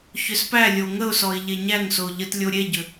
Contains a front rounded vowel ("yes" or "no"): yes